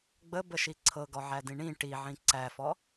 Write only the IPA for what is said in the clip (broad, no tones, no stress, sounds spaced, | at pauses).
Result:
ɡ͡b ə b ə ʃ i ǀʰ ɤ ɡ ɔ ʕ æ d ĩ ɳ ĩ ʈ i ʕ ĩ ǀ æ f ɔ